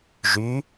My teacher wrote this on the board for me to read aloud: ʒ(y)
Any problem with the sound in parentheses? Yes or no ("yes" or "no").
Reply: no